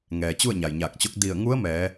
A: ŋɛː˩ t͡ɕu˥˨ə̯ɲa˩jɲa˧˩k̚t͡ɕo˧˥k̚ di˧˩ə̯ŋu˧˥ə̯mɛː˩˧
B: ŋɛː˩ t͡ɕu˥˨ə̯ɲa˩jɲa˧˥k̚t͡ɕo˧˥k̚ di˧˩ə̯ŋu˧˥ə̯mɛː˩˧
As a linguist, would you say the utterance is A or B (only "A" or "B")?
A